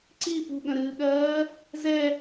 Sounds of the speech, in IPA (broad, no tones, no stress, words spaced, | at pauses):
ǀi pṳɠə̃ɾɨːɠɜː | zɛ